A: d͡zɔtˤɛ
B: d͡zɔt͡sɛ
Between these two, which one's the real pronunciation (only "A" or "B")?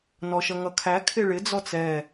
B